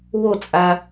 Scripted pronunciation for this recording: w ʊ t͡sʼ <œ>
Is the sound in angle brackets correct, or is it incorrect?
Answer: incorrect